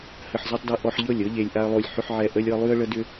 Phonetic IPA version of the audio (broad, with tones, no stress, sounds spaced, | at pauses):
h ə˧ ħ z ɤ˦ tˤ d ɤ˦ ʔ ɔ˧ ħ ʎ ɤ˦˨ lʲ ɤ˦ ʎ e˧ lʲ ʔ a˦ ə̯ lˠ o˦˨ lʲ ħ ʏ˦ ħ ʕ ɛ˦˨ ʔ ə˦ lʲ ɤ˦ lˠ ʉ˦ ə̯ ɭ ə˦ d ʏ˦